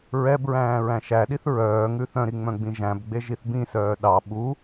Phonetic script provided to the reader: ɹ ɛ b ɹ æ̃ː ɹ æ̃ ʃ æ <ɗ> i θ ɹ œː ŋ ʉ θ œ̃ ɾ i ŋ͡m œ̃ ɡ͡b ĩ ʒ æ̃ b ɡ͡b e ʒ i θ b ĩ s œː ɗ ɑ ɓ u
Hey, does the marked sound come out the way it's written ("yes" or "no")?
yes